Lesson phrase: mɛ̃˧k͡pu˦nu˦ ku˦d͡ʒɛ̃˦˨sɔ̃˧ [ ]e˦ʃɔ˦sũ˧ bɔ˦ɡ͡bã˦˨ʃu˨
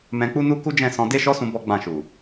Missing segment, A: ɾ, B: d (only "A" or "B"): B